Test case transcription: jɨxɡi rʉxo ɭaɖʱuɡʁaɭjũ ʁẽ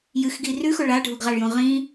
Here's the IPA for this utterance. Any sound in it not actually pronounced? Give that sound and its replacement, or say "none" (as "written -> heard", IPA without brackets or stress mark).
ẽ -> ĩ